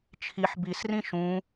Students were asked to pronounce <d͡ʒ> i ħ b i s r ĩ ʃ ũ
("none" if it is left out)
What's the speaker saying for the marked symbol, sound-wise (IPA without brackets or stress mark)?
t͡ʃʰ